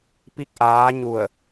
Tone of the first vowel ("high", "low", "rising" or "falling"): falling